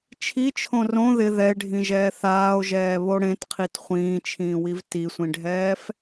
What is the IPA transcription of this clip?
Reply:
t͡ʃʰ i t͡ʃʰ õ r õ ð ɪ ð ɛ e̯ ɖʱ ĩ ʒ ɛː θ aː o̯ ʒ ɛː β o ɽ ẽ t qʰ i t χʷ ĩː t͡ʃʰ ĩː w i v t i sʷ ĩ ɖʱ ɛː f

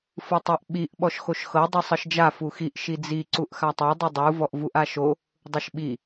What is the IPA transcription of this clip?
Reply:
f ɯ tˤ e ʔ ɓ i ʔ ɓ ɔ ʃ x o ʃ x ɤ dˤ ɯ sˤ ɤ ʃ d͡ʒ a f u x i ʔ ʃ i d͡z i ǀ u ʔ x a tˤ ɤ dˤ ɯ dˤ u v ɔ ʔ v u ʔ a ʃ o | dˤ ɯ ʃ ɓ i

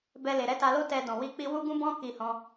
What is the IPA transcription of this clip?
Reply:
b ɛ˧ l e˨ ɾ ɛ˨˦ t a˧ l o˦ t ɛ˧ d ɔ̃˨ w i˧ k͡p i˧ w u˦ ɡ ũ˦ b ɔ̃˦ k i˧ h ɔ̃˧

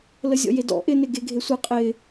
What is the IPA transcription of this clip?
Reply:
l ə zʲ ɔ̰ j e d ɔ̰ ʔ ɪ n ɪ ɡ e ɡʱ e sʷ ɪ qʼ ɪ

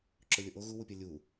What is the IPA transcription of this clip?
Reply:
ǁ ʊ lʲ ʊ ʔ o ɣ u w u pʲ ɐ lʲ u

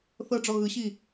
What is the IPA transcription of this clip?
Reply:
θ ɤ ɖ͡ʐ ɔ ɣ ɯ ɕ i

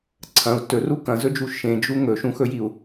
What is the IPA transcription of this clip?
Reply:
ǀʰ ɐ̃ u̯ t ɵ r u k ɐ̃ z ɵ d͡ʒ u ʃ ẽ d͡ʒ u ŋ ɵ ʃ ũ x ɵ j i u̯

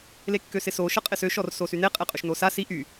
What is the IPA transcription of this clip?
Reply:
l e kː ø s ɪ s o ʃ ə qʼ ɪ s ø ʃ ɔ r s o s y n e qʼ e qʼ ø ʃ n o s a s i ʔ y

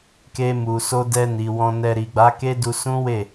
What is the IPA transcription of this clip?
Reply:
k e˧ m u˨ s o˧ d ɛ˧ n i˨ w ɔ̃˧ n ɛ˧ ɾ i˨ ɡ͡b a˨˦ k e˦ d u˧ s ũ˦ w e˦˨

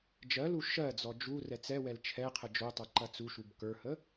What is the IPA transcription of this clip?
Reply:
d͡ʒ ɜ l u ʃ ɜ d͡z ɔ d͡ʒ u r ɛ t͡s ɛ w ɛ l t͡ʃʰ ɛ qʰ ə d͡ʒ o tˤ ə˞ ǃ ɐ t͡s u ʃ u b k ə˞ h ə

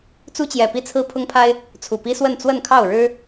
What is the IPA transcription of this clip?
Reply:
t͡s u˦ t͡ɕ j ɛ˨˩ p i˥˨ t͡sʰ ɹ̩˦ pʰ ʊ˦ ŋ pʰ a˦ ɪ̯ | t͡sʰ u˨˩ p i˦ s w ə˥˨ n t͡s w ə˥˨ n kʰ ɑ˥˨ ʊ̯ ɻ ɻ̩˦

